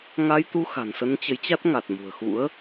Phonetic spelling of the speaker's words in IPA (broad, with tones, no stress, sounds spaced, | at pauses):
ŋ a˧ j t̪ u˧ x a̤˨˩ n s ə˧ n t͡ɕ ə˨˦ j t͡ɕ a˦˥ t̚ ŋ a˨˩ t̚ m ṳ˨˩ ə̯ x ṵ˧˥ ə̯